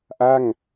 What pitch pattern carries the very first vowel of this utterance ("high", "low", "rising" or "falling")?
falling